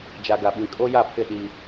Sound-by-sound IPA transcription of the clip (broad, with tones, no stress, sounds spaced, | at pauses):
d͡ʒ a˨ ɡ a˨ ɓ ĩ˨ kʼ o˦ j a˦˨ pʰ ɪ˦˨ ɗ i˦